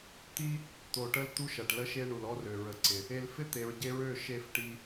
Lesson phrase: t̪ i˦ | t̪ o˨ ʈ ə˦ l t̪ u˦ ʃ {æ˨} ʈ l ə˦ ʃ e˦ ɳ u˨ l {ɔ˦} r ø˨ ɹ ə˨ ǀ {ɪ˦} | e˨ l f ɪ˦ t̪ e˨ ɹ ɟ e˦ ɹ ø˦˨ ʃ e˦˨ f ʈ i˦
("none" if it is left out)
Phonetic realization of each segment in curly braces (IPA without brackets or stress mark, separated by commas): ɐ˨, ɔ˦, ɪ˨